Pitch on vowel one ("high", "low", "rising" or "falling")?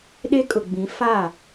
high